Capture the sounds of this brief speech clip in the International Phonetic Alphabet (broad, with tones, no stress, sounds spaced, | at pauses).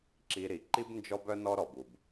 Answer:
ǁ i˧ ɾ i˨ ǃ i˦ b n d͡ʒ ɔ˦ b œ˦ n ɔ˦ ɾ ɔ˨ b u˨ b